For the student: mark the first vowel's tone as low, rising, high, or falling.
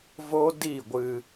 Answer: high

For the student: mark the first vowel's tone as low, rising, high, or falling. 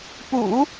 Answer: low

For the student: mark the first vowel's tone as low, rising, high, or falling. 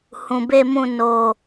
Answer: low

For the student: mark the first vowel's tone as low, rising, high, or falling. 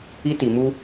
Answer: high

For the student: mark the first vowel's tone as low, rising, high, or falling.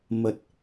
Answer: low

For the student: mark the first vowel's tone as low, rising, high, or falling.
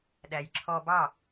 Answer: low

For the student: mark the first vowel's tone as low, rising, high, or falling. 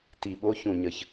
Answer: low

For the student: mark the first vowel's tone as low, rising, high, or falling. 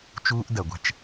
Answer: high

